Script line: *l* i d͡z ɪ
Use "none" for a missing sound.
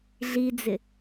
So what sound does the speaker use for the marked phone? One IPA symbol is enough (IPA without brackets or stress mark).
ɮ